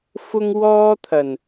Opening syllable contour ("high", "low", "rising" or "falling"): high